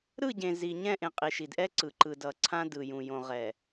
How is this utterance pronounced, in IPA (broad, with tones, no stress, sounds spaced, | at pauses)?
ɾ ɯ˦˨ ɟ ẽ˨ z i˨ ɲ ɛ̃˦˨ ʔ ẽ˨ qʼ i˨ ʃ i˨ d ʔ ɛ˦ ǀ ɯ˨ ǃ ɯ˨ d ʌ˨ ǀʰ ã˦ d ɯ˨ j ũ˨ j õ˨ ʁ ɛ˨